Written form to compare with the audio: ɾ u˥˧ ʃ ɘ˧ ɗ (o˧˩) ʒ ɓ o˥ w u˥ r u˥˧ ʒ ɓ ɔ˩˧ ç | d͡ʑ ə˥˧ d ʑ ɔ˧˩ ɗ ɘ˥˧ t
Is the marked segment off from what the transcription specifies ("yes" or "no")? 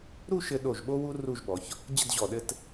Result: no